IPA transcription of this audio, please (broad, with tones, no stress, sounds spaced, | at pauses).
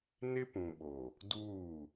n ɪ˦ p ũ˨ ɓ o˨ | d uː˦˨